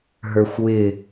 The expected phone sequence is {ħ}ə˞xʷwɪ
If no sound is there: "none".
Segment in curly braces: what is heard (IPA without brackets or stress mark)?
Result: ɦ